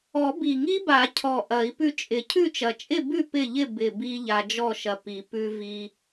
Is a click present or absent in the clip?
absent